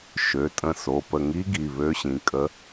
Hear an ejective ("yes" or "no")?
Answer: yes